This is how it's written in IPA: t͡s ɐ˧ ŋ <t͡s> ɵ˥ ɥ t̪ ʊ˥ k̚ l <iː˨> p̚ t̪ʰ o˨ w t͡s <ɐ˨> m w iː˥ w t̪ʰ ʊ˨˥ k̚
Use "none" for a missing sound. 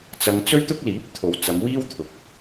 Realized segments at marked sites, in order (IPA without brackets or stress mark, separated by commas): t͡s, iː˨˥, ɐ˨˧